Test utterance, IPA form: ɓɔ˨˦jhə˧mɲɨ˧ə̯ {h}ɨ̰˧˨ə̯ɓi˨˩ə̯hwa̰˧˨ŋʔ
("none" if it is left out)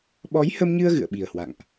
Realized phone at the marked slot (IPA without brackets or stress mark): ɣ